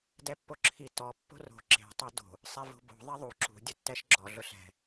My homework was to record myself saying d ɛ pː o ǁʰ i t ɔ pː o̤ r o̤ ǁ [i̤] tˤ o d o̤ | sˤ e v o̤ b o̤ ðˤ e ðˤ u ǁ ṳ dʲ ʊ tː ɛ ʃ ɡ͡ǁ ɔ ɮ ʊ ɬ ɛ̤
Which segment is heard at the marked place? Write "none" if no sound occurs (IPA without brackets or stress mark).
e̤